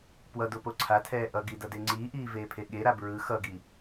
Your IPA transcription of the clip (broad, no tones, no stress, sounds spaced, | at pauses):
p w ʌ d o p o ǀʰ a tʰ ɛː ʔ ʌ ɡ i d ʌ d e ŋ͡ǀ iː ʔ iː v eː pʰ e ɠ e ɾ a b ɹ ɯ x ʌ ɡ i